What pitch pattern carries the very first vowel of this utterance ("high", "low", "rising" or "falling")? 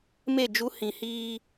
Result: falling